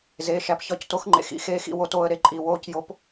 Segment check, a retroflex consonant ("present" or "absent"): absent